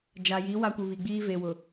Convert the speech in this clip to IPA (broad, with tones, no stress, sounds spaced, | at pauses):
d͡ʒ a˨ j i˨˦ w a˦ kʷ i˨ β i˨ ɡ͡b iː˦ v e˨ w ʊ˨